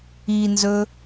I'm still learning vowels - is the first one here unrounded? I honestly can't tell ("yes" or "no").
yes